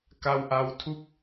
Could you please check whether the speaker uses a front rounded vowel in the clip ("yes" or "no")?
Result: no